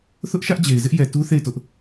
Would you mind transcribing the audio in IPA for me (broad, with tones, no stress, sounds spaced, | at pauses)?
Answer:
θ ʊ˦ ʔ ʃ ä˦ ʔ d͡ʑ e˨ ɪ̯ z ɪ˦ ʔ j ɛ˨ t u˦ θ e˦˨ ɪ̯ t ʊ˦ ʔ